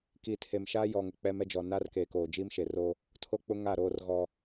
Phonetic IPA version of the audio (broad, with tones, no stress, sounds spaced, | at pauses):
k i˨ tʰ e˨ m ʃ aː˦ j ɔ˨ ŋ ʊ˨ k͡p ɛ˦ m ɛ˦ d͡ʒ ɔ˨ n a˦ r k eː˨ k oː˨ d͡ʒ iː˦ m ʃ e˨ r o˦ | tʰ o˦ k͡p ʊ˦ ŋ a˦˨ ɾ oː˦ r ɣ ɔ˦